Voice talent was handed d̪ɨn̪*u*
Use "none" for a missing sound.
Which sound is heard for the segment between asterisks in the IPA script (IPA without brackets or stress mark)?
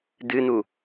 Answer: u